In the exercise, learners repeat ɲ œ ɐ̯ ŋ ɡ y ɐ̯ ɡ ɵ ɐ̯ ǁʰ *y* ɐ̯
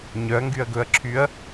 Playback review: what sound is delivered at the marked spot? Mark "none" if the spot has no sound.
y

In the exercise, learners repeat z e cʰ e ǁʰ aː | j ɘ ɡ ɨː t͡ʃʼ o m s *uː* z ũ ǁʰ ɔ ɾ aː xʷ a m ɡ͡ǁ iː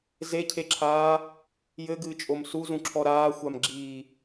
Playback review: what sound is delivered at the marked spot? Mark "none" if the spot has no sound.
u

